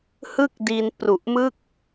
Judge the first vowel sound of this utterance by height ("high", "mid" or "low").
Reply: high